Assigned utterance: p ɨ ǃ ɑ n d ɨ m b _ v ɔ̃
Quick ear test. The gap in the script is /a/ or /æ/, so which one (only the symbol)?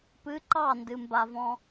a